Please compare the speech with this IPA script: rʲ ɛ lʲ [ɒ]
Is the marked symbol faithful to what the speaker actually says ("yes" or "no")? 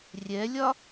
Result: yes